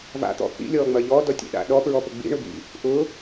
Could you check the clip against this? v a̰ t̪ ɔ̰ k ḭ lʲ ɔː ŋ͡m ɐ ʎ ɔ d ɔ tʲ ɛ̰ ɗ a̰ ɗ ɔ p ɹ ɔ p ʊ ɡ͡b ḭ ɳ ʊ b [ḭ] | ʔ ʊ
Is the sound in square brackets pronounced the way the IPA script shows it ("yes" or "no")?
yes